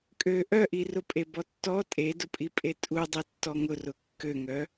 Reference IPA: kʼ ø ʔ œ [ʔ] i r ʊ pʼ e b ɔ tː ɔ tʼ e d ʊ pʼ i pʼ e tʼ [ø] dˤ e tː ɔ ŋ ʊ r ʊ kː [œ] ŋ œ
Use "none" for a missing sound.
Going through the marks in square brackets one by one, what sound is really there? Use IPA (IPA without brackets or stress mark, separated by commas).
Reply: ʔ, u, ø